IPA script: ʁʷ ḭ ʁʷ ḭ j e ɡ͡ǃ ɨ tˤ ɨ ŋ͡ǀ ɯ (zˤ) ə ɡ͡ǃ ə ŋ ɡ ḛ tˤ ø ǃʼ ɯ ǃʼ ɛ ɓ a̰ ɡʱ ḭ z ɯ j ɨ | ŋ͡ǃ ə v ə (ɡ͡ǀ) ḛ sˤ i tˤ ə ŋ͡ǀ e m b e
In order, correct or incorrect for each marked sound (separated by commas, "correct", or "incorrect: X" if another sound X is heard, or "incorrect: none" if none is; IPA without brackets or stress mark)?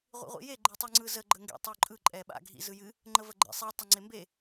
incorrect: z, incorrect: ɡ͡ǃ